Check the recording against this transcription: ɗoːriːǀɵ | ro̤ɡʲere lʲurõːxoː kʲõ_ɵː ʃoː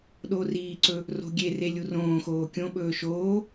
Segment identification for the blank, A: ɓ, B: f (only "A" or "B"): A